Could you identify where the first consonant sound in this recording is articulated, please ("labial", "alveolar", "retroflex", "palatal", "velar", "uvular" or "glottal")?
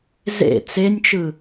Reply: alveolar